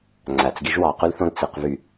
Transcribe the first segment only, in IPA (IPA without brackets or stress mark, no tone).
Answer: ŋ͡ǀ